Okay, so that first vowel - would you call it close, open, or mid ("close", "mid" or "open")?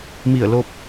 close